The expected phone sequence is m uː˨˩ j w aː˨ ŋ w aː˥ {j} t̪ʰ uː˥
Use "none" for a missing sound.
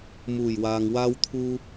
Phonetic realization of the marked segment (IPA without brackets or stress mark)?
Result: w